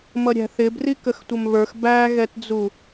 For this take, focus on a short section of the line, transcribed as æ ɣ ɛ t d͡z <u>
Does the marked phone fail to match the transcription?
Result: no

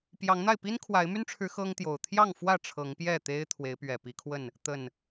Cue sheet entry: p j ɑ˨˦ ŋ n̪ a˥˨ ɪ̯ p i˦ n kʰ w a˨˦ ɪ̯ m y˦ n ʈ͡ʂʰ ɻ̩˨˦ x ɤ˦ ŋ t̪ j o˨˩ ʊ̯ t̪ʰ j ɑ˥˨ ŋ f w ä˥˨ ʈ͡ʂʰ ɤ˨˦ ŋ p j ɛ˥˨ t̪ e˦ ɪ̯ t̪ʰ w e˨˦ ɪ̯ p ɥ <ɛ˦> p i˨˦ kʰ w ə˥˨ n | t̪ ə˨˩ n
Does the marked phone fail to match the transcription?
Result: yes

